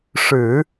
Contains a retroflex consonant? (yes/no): yes